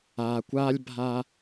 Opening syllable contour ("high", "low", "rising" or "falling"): low